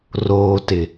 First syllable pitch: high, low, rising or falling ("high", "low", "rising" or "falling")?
low